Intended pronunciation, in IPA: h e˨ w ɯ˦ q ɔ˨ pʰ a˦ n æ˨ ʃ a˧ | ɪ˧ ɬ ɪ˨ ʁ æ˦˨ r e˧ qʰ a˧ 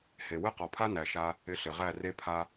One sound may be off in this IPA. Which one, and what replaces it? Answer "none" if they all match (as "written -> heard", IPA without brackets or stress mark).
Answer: qʰ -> pʰ